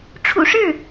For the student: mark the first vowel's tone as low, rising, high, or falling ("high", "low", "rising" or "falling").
low